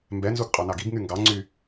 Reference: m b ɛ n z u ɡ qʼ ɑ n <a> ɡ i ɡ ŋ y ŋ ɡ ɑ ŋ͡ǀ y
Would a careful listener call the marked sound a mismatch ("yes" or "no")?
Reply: yes